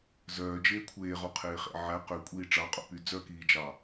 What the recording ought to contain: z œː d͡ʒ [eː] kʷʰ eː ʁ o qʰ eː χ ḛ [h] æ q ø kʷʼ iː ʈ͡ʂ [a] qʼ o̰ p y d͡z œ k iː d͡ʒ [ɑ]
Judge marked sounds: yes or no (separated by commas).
yes, no, no, yes